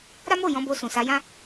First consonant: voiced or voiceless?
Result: voiced